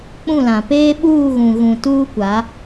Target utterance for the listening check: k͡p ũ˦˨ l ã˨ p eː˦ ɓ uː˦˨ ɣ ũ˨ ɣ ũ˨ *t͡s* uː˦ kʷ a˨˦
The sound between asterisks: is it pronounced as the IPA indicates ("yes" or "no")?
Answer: no